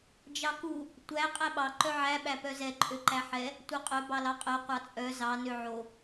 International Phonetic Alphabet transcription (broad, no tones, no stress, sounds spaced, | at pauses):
d͡ʒ ɑ k u | tʷ æ qʼ æ ɓ ɑ ǃ œ ʕ æ ɓ æ p œ z ɛ ǃʼ ø ǃ æ ħ ɛ | tʷ œ qʼ œ b ɑ l ɑ qʼ œ qʷ ɑ t͡sʼ œ z ɑ n ø ʕ o